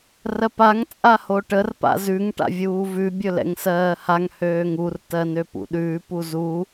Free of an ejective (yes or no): no